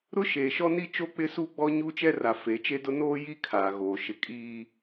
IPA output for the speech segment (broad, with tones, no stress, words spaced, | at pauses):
ɾʊ˦ʃeː˨ʃɔ˦ni˦ t͡ʃo˦k͡pɪ˦suː˦ɡ͡bɔ˦ ɲuː˦t͡ʃɛ˦ra˨ fe˨˦t͡ʃe˦dʊ˦ noː˦ji˦ kʰaː˨ɣoː˨ ʃɪ˨kʼiː˦